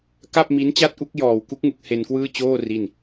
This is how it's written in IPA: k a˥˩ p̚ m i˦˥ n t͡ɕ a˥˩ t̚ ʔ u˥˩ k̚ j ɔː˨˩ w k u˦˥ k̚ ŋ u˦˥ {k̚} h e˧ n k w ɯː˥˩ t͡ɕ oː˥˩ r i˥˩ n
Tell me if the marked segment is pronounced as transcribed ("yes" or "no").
yes